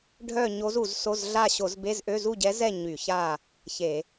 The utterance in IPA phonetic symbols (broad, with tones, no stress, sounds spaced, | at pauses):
ɖʱ œ˥˨ ɲ o˧˥ z u˧˩˧ z s o˧˥˧ z ɮ a˥˨ ɕ o˧˩˧ z b e˧˥˧ z ʔ ø˧˥˧ z u˥˨ ɟ ɛ˧˥ z ɛ˥˨ ɲ y˧˩˧ ç a˥˨ | ç e˧˩˧